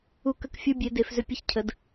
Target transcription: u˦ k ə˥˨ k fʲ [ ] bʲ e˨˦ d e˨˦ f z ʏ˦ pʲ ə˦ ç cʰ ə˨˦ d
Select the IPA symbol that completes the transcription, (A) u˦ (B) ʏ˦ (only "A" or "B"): A